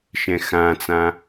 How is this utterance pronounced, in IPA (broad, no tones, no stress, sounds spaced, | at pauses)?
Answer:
ʃ ɛ̃ x ã t͡s ã